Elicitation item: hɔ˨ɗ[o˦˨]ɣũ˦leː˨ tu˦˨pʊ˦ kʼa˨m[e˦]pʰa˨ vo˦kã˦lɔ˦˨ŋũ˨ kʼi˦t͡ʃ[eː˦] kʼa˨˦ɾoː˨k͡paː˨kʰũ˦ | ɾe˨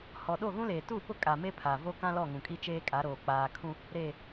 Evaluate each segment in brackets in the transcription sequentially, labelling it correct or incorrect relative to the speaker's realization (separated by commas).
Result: correct, correct, correct